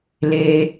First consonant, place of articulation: alveolar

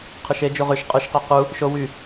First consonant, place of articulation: uvular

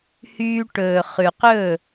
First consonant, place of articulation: glottal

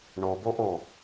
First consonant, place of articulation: retroflex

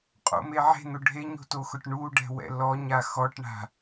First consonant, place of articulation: uvular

